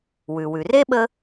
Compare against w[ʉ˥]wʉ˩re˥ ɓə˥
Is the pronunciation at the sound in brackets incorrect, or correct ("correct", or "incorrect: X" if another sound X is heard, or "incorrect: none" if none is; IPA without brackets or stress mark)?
incorrect: ʉ˩